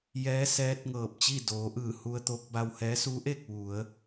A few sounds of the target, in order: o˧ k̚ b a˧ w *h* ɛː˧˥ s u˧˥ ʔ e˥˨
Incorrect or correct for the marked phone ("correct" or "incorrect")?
correct